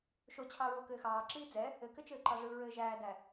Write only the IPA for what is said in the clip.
ʃ o t͡ɕʰ ɑ ɹ o k ɘː x ɑː ǁ iː d͡z ɛ | ɘ k ɘ t͡ʃ ɘː ǃ ɑ ʐ ɯ ɹ ɘː ʒ æː d æ

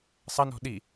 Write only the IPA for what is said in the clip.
sˤ ɐ n ɔ̤ ɗ i

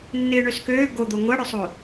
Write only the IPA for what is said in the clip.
nː ɪː ɳ ø s k øː ɡ o d̪ o ŋʷ ɐ ɽ œ sˤ o

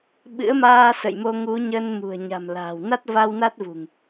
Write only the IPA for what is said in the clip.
ɓ ɨ̰˧˥ ə̯ m aː˧ s ə̰˧˨ j m o˧ ŋ u˨˦ ɲ ə˧ n m ṳ˨˩ ə̯ ɲ a̤˨˩ m l a̤ː˨˩ w n a˦˥ t̚ v a˧ w n a˦˥ t̚ v ṳ˨˩ ŋ

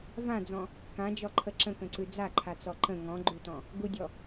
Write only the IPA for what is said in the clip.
v ã d͡z ɔ̃ | k ã d͡ʒ ɔ ǃʰ ə ǁ ə̃ k ə̃ ǀ ʉ d͡z a ǃʰ a t͡s ɔ ǃ ə̃ ŋ ɔ̃ ɡ͡ǃ u t ɔ̃ | ɡ u dʲ ɔ

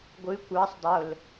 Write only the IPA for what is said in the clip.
ɡʷ ɨ kʷ ɑ sˤ dˤ o l

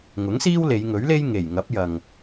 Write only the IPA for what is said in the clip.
ŋ ʊ˨˥ ŋ s iː˥ w l e˨˧ j ŋ ɵ˨˥ ɥ l e˥ j ŋ e˨˩ j ŋ ɐ˨˥ p̚ j ɐ˨ ŋ

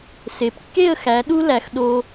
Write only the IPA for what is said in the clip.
s e˩˧ p kː e˥˧ ə̯ x æ˩˧ ɗ u˥ l æ˩˧ x ɗ o˧

